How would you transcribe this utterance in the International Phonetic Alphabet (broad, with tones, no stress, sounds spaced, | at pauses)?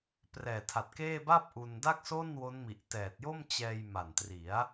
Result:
p r ɛː˨˩ tʰ a˨˩ t̚ k eː˥˩ b a˥˩ p̚ ʔ u˧ n d a˥˩ k̚ s o˥˩ n w o˦˥ n m i˨˩ ʔ t ɛː˨˩ t̚ j o˥˩ m t͡ɕ ɛː˧ j m a˨˩ n t r i˩˦ a̯